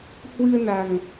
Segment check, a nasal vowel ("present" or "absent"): absent